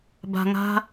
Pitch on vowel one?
low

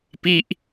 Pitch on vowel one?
falling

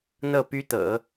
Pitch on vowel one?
falling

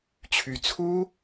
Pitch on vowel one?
rising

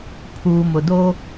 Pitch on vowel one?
low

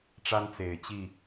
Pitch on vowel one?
high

